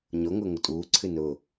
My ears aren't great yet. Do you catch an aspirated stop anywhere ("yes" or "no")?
yes